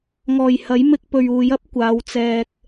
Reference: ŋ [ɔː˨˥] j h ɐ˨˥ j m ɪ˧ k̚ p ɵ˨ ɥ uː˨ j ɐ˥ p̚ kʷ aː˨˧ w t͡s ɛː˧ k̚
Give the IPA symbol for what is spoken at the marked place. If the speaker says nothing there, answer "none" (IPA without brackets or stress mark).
ɔː˨˩